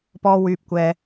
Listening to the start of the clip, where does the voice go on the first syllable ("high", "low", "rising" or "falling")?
high